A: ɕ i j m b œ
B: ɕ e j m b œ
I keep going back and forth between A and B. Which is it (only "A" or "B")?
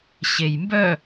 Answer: B